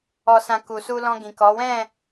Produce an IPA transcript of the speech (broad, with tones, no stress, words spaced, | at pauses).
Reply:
ɔ˧sã˧ku˨ su˧lɔ̃˧ ɡĩ˨kɔ˨˦ wɛ̃˦˨